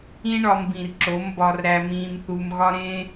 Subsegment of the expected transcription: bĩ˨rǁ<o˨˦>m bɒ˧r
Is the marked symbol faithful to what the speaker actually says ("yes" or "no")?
yes